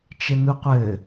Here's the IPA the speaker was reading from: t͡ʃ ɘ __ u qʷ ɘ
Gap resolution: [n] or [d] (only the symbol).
n